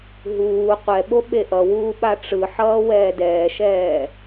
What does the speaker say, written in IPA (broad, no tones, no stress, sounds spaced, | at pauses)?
ɦ uː qʷ ɛ ɓ o ɓ e ʔ ʌ w uː ɓ a ʈ͡ʂ ɯ ħ ʌː w ɛː d ɛː ʃ ɛː